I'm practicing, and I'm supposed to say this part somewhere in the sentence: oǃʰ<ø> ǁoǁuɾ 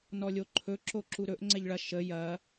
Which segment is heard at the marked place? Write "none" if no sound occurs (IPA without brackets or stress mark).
ɵ